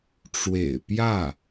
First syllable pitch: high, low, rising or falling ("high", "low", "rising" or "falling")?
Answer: low